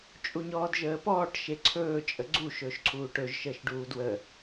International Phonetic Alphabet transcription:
t͡ʃʼ u ɲ ɔː d ʒ əː p ɔː ʈ ʃ e ǀʰ ɵː t͡ʃʼ ə ɡ͡ǀ u ʃ ɵː ʃ ǀʰ uː ʈ ɵ ʒ ʃ əː ʃ ɖ uː d w ə

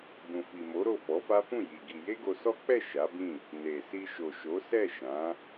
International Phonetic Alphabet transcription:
b ũ˨ f i˨ m o˨˦ ɾ o˦˨ f ɔ˨˦ f a˦ f ũ˦˨ j i˨ ɡ i˧ j e˦ ɡ o˧ s ɔ˦ k͡p ɛ˦˨ ʃ a˨˦ b ĩ˦˨ | n e˨ s i˧ ʃ o˨ ʃ o˨˦ s ɛ˦˨ ʃ ã˨˦

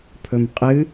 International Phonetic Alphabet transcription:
pʰ ɵ m qʼ ɨ

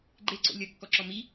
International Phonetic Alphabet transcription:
ɡ͡ǃ e ǀ o̰ lʲ ʌ kː ɔ ǁ ɔ m i

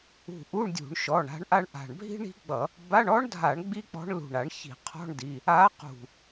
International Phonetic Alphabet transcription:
ṳ˧˩ ʔ u˧˥˧ ɳ dʲ ṳ˧˩˧ ɳ ʃ ɔ˩˧˩ ɳ a̤˧˥ ɳ ʔ a˥ ɳ ʔ a̤˧˩ ɳ bʱ i̤˥ ɳ i̤˧˥ ɡ͡b ʌ˧˩˧ | b a˧˥˧ ɳ ɔ˧˥ ɳ dʱ a˧˩˧ ɳ ɡ͡b i˥ k͡p ɔ̤˧˥ ɳ l ṳ˧˩ ɳ a˧˩˧ ɳ ç i̤˧˩˧ qʰ ɔ̤˧˥˧ ɳ d i˩˧˩ | a˧˥ q ṳ˧˩

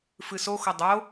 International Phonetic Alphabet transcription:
f ɨ s o x o dˤ o

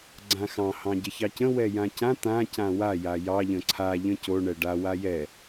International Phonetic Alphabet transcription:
ɡ͡ǀ ã x ɑ̃ h ɑ̃ ɟ ə ç ɑ c ə̃ w ɛ j ã c ã t̪ ã c ã w a j a j ɑ ʎ ə̃ ǀʰ a ʎ ə̃ c o ɳ ɛ ɖ a w a j ɛ

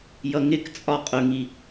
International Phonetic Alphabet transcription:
j ʌ ŋ ɪ k t͡sʼ ɒ qʼ ʊ ŋ i

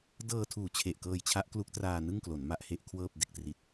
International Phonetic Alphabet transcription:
d ɤː˧ tʰ uː˨˩ t͡ɕʰ e˨˩ ʔ k ɤː˧ j t͡ɕʰ a˦˥ ʔ k l u˦˥ k̚ t r aː˧ n ɯ˥˩ ŋ k l o˩˦ n m a˦˥ ʔ h e˦˥ ʔ kʰ w ɤː˥˩ p̚ d e˥˩ k̚ t r i˦˥ t̚

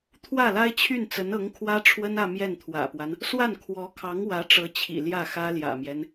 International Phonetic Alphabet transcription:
t̪ʰ w ä˥˩ l a˥ ɪ̯ t͡ɕʰ y˥˩ n t͡s ə˧˥ n ɤ˧˥ ŋ kʰ w ä˥ ʈ͡ʂʰ w ə˥ n ä˥˧ m j ɛ˥˩ n t̪ʰ w ä̰˨˩ p w a˦ n | s w a˥˩ n kʰ w ɔ˧˥ kʰ ɑ˧˥ ŋ w ä˧˥ ʈ͡ʂ ɤ˧˥ t͡ɕʰ ḭ˨˩ l j ä˥˩ x ä˥ l j ä̰˨˩ m j ɛ˦ n

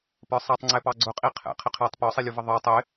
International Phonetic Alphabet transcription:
p ə˞ sˤ æ tˤ ŋ͡ǀ ɛ p ɑ ɡ͡ǀ ʊ qʼ i qʰ ɛ̰ qʰ ɪ qʰ æ tˤ p ɔ sˤ i lʲ u v ə ðˤ ə˞ tˤ ɪ

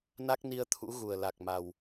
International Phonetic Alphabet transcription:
n a˦˥ k̚ n i˧ ə̯ t̪ʰ ṵ˧˥ ɣ u˨˩ ə̯ l a˨˩ k̚ m a˨˩ w

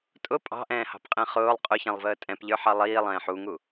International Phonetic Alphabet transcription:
tʼ ʊ pʼ ɑ̤ ʔ ɛ̃ː h ɑ̤ p qʼ ɛ̃ χ ʊː lˠ qʼ ʊ ç ɛ̃ lˠ v əː tʼ ɛ̃ p ʎ ə˞ ħ ɑ lˠ iː lˠ ɛ̃ː ħ u ŋ u

